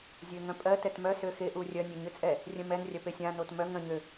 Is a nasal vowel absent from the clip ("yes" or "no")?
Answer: no